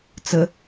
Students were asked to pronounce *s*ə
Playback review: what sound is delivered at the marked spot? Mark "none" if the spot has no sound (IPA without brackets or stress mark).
t͡s